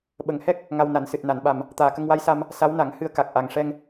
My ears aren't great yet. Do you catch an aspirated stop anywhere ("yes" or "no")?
no